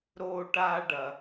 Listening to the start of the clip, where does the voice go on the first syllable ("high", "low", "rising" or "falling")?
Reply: high